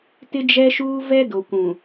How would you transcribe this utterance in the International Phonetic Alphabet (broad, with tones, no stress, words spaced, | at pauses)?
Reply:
tɪ˦d͡ʒɛ˦ʃuː˦ vɛ˦ do˨kʷũ˨